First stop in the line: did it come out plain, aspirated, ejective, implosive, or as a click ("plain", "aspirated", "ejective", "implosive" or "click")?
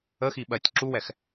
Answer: implosive